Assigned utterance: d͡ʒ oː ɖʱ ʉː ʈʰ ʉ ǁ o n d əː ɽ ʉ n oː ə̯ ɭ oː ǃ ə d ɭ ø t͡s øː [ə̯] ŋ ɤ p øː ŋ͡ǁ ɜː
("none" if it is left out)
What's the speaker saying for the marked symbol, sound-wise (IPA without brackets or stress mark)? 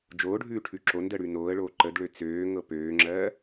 none